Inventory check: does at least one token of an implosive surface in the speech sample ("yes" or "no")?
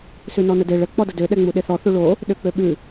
yes